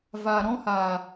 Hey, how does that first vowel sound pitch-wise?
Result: low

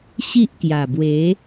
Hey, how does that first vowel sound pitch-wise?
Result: high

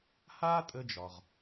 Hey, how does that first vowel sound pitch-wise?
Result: high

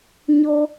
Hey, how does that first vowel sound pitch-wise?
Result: high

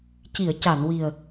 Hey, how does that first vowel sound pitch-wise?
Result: low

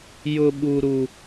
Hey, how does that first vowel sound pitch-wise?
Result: high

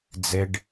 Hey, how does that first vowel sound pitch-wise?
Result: high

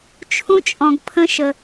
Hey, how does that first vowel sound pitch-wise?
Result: high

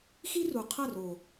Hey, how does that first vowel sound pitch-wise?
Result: high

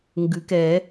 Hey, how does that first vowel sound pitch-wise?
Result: rising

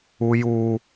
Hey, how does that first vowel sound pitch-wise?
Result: high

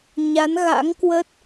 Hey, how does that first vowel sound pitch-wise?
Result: rising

